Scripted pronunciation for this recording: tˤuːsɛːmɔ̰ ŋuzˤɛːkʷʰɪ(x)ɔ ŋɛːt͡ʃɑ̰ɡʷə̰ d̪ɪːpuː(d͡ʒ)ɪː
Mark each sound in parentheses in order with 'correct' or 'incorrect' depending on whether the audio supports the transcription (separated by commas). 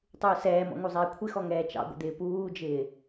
correct, correct